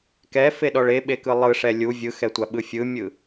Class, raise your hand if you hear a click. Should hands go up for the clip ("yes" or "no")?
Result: no